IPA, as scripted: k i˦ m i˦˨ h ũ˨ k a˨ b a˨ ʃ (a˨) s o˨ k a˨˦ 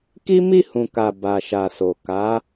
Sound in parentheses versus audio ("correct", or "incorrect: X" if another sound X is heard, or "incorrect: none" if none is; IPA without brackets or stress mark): correct